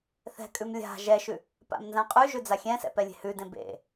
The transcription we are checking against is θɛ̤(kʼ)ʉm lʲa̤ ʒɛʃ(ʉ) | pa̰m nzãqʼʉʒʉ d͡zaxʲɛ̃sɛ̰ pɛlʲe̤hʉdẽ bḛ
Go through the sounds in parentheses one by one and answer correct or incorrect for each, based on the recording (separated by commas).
correct, correct